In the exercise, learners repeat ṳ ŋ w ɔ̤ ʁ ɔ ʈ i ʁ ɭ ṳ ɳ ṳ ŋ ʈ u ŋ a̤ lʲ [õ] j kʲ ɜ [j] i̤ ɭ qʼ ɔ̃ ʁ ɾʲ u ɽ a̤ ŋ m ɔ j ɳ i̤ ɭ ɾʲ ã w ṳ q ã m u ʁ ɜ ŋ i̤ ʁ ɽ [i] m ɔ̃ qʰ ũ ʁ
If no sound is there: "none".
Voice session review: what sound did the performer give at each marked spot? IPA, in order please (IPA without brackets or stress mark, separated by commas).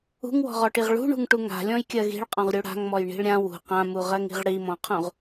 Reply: ɔ̃, ɣ, i